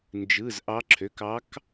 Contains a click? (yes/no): yes